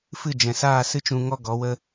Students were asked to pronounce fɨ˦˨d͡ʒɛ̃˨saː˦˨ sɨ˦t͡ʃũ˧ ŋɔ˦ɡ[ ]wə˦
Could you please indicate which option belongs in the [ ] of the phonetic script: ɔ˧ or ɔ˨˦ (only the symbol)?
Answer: ɔ˨˦